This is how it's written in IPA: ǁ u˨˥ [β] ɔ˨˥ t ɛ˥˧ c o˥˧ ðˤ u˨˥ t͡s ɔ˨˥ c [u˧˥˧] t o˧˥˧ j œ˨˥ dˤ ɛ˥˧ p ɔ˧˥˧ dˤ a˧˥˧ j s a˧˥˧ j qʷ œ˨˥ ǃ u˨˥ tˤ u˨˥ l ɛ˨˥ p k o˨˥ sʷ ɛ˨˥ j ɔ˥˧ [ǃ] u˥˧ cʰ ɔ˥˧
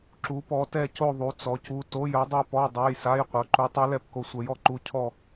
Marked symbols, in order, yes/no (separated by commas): no, yes, yes